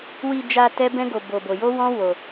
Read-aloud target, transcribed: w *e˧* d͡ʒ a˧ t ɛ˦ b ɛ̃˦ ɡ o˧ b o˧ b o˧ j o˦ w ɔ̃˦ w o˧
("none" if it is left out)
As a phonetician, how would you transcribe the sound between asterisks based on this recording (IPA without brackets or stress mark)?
i˧